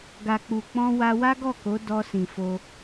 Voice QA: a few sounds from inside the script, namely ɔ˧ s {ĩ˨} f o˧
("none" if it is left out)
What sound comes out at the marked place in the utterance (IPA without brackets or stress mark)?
ĩ˨